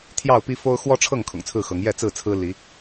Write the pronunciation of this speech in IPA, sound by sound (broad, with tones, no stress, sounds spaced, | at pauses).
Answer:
t̪ʰ j ɑ˥˨ ʊ̯ p i˦ f o˦ ʊ̯ x w ɔ˦ ʈ͡ʂʰ ɤ˥˨ ŋ kʰ ʊ̰˨˩ ŋ t͡sʰ ɹ̩˥˨ x ɤ˨˦ ŋ j ɛ˥˨ t͡s ɹ̩˥˨ t͡sʰ ɹ̩˦ l i˨˦